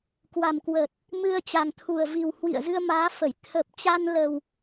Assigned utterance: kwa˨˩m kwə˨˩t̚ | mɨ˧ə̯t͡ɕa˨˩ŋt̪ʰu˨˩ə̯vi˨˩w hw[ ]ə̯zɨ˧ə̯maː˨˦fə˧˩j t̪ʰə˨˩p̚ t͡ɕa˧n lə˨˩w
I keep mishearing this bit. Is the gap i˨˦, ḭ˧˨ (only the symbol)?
ḭ˧˨